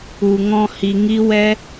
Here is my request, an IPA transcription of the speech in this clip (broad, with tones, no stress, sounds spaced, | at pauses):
u˨ ŋ ɔ̃˧ h i˨ ŋ i˦ w ɛ˦